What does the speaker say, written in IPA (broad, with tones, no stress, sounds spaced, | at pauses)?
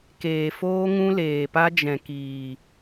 k eː˨ f oː˦ ŋ ũ˦ l eː˨ p a˦ d͡ʒ ɛ̃˨ k iː˨